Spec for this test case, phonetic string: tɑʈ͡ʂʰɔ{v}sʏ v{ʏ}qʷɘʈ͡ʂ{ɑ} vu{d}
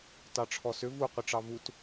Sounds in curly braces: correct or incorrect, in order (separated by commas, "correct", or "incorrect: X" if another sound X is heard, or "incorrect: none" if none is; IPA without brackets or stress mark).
incorrect: none, incorrect: u, correct, incorrect: t